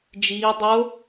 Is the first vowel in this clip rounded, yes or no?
no